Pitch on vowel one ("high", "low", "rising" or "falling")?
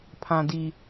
low